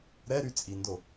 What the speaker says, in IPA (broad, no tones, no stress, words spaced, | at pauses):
ɾɛɾy t͡sʼindo